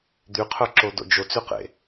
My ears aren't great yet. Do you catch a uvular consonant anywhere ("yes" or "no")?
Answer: yes